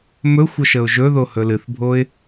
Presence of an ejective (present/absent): absent